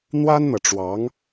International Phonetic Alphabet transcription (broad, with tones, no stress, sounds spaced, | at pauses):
n̪ w a˥ n n̪ ɤ˨ ʈ͡ʂ w ɑ˧˥ ŋ